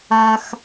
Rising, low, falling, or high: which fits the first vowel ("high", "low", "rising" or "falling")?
low